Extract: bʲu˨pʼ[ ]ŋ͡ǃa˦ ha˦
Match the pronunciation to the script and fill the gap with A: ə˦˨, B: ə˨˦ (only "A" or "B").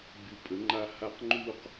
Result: B